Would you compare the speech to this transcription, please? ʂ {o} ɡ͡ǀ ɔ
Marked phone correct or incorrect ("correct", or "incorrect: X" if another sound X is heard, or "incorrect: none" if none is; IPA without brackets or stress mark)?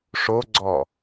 correct